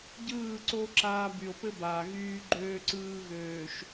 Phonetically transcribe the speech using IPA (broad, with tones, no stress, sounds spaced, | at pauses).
ɟ ɯː˦˨ ǀ o˦ ǁ aː˦ b y˨ o̯ p ɘ˦ b aː˨ ɣ yː˦ ɡ͡ǃ øː˦ ǀ ɯː˦ ɣ øː˨ ʃ